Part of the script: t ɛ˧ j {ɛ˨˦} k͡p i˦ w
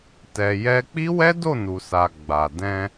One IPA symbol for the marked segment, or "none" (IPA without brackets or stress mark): ɛ˦